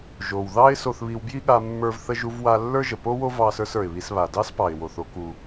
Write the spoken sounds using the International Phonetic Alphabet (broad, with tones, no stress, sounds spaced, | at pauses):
ʒ o˩ w ð ɑ˥ ɪ̯ s o˧ θ β i˧ w b j i˥ ɠ a˧ mː ə˞˧ v θ ə˧ ʒ u˧ v w a˧ lː ə˞˥ ʒ ə˩ p o˥ w o˥ v ɑ˧ s ə˞˧ s ə˞˩ ɪ̯ β i˧ s β a˩ d ɑ˥ s p ɑ˩ ɪ̯ w o˩ θ o˧ k u˩